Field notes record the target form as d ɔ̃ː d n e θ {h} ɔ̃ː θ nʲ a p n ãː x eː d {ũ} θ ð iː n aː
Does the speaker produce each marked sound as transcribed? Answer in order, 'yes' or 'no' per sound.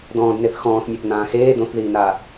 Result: no, no

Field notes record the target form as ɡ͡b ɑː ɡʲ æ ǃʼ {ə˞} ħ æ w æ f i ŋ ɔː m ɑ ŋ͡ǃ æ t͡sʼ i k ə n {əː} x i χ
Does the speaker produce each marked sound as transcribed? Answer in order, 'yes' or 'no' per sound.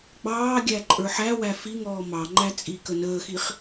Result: yes, yes

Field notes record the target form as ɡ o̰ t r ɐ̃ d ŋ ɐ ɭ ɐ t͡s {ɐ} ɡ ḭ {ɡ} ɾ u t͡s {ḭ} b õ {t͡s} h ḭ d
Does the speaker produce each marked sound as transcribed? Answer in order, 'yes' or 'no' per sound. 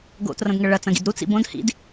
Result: no, no, yes, no

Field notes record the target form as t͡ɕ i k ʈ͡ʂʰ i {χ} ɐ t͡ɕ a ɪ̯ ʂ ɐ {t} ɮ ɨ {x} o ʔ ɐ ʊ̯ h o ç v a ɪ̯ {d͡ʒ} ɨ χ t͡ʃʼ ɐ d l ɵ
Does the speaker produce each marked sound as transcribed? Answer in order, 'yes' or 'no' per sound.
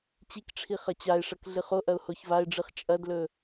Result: yes, no, no, no

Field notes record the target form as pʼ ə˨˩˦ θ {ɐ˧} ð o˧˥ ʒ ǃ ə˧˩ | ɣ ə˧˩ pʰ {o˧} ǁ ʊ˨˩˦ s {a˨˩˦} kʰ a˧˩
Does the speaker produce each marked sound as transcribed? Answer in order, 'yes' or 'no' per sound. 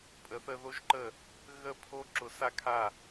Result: no, yes, no

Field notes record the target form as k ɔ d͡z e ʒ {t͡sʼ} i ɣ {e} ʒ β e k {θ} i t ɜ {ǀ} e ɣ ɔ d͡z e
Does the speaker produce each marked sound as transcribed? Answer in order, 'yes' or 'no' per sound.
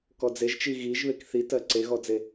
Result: no, no, yes, yes

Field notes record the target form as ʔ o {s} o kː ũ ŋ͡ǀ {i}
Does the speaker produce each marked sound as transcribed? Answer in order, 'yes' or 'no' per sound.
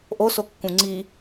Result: yes, yes

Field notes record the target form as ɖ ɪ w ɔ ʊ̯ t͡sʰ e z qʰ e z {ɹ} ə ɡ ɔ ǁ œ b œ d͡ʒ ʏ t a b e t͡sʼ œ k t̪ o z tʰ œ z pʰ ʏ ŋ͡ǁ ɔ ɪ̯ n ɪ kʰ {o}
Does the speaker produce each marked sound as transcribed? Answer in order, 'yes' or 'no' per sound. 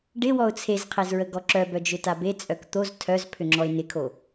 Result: yes, yes

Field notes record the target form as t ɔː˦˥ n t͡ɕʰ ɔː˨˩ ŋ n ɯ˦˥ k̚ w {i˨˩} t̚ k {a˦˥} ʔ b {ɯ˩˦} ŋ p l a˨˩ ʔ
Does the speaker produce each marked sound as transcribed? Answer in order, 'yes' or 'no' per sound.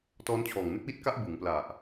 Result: no, yes, yes

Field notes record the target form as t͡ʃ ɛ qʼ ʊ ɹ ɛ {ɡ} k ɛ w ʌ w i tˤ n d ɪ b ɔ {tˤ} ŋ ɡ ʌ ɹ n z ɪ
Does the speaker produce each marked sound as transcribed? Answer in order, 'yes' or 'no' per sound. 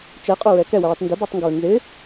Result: no, yes

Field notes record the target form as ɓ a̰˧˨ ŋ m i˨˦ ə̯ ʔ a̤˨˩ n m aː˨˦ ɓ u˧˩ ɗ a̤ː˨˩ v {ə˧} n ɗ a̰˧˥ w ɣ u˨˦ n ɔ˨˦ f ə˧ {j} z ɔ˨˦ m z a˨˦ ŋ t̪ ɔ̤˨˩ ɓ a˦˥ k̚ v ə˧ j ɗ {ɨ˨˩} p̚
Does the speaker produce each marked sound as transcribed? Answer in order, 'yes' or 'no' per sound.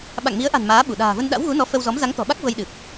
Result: yes, no, yes

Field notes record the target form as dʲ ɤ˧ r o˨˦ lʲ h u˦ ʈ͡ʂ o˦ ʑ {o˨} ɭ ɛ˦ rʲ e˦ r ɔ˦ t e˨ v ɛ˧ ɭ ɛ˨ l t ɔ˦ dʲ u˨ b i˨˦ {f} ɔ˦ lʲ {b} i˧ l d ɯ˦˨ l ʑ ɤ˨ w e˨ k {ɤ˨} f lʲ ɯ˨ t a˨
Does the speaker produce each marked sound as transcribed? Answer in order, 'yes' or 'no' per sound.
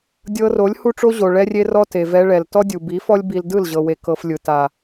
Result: yes, yes, yes, no

